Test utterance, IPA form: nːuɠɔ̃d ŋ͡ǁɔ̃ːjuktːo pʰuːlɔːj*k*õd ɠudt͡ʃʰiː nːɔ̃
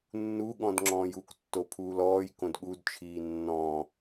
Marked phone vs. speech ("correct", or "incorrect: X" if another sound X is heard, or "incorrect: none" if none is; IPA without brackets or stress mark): correct